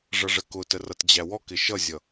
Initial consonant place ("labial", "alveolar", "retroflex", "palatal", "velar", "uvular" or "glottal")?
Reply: retroflex